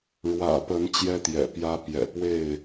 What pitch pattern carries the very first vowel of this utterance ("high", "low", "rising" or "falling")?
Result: low